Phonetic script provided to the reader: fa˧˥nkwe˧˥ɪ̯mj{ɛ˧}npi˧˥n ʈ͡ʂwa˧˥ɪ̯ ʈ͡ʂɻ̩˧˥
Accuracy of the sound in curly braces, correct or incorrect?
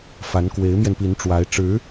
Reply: correct